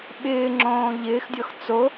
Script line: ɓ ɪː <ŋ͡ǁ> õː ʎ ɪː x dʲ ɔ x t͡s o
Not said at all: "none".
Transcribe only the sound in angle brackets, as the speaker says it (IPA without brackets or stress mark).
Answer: ŋ͡ǁ